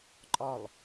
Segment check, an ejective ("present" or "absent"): present